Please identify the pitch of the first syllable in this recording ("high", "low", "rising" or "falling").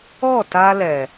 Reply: falling